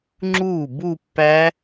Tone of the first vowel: falling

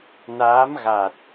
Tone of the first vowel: rising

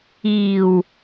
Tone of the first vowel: low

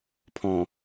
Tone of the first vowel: low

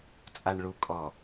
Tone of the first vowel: low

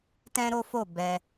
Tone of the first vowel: high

